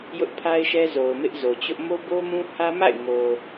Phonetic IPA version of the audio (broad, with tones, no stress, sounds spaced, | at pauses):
j ʊ˦ ʔ pʰ a˦ ɪ̯ ʃ ɛ˦ z o˨ ʊ̯ m ɪ˦ ʔ z o˨ t͡ɕ ʊ˦ ʔ m o˦ b o˦ m ũ˦ h ä˦ m a̰˦˨ ɪ̯ ŋ o˨